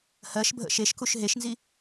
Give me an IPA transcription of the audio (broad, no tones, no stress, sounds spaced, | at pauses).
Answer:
h ɜ ʃ bʱ ə̰ ʃ e ʃ k u ʃ ɦ e ʃ n z i